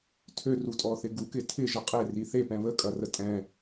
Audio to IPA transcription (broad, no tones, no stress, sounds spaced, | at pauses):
tʰ ø r u tʼ ɔ θ ɪ ɡ u k ɪ tʰ ɪ ʒ ə qʼ e r i θ e p ɛ̃ β ə kʼ ɐ r ə tʼ ɛ̃